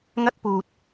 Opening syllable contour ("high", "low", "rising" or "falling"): high